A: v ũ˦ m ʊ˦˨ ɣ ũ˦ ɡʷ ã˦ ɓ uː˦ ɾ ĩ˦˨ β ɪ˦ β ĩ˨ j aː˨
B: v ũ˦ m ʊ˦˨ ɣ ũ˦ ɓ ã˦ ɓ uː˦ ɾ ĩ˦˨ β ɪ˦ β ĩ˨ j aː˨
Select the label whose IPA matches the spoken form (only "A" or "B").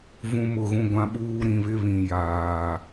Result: A